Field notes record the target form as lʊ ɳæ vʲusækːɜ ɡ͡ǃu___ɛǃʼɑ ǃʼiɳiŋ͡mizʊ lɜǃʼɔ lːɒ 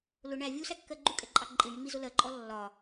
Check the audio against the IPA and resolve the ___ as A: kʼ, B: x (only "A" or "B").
A